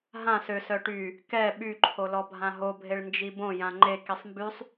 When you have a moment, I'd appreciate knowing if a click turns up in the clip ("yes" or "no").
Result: yes